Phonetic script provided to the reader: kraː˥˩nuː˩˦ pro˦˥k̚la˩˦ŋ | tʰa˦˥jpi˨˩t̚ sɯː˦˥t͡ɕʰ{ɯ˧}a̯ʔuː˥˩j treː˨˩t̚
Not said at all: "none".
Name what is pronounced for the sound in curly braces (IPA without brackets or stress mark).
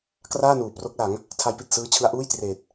ɯ˦˥